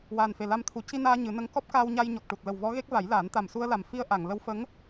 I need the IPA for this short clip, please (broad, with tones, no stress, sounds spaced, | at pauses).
w aː˨˩ n f e˨˩ l a˧ m t̪ʰ u˨˩˦ c i˧ n aː˧ ɲ ɨ˨˩˦ n ə˧˥ ŋ k ɔ˦˥ p̚ k aː˧ w ɲ a˧ j ɲ ɔ˨˩ k̚ ʈ u˨˩ t̚ l ə˨˩ w v ɔ˧˥ ɣ e˦˥ k̚ v a˨˩˦ j l aː˨˩˦ n t̪ a˨˩ m s u˧ ə̯ l a˨˩ m f i˧ ə̯ ʔ a˨˩˨ ŋ l ə˧˥ w f ə˧˥ ŋ